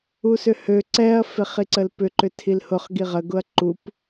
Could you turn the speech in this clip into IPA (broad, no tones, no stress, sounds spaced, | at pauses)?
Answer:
u s ʏ h ø ǀ ɛ ɐ̯ f e χ i ǀ ə l p ʏ ǃ ʏ tʰ i l h ʊ χ ɡ i ʁ ə ɡ ʊ ɐ̯ ǃ u p